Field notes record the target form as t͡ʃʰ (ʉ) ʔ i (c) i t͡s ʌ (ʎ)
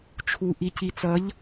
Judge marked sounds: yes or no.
no, yes, yes

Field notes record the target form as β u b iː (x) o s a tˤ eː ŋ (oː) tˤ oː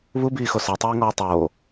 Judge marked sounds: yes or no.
yes, no

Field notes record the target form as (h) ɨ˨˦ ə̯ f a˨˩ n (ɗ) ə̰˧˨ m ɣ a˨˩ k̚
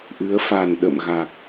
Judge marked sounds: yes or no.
no, yes

